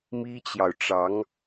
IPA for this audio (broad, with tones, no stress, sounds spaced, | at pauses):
m i˥ t͡ɕ j ɑ˨ ʊ̯ ʈ͡ʂ ɑ˧˥ ŋ